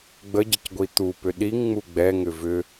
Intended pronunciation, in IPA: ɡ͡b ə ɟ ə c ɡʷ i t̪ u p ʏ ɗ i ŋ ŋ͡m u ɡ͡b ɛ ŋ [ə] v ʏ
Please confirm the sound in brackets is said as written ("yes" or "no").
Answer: no